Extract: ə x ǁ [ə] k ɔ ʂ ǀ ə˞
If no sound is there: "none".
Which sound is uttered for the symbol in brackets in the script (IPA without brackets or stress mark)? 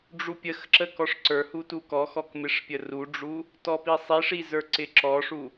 ə